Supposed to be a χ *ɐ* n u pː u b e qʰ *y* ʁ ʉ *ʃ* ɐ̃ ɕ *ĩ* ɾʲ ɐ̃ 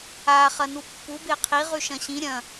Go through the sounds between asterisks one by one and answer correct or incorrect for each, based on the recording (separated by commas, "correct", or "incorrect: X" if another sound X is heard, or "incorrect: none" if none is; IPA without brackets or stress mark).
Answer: correct, incorrect: i, correct, correct